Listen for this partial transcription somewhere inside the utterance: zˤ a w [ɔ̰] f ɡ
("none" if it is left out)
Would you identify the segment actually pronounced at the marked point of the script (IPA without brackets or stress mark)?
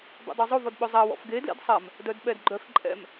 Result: ɔ̰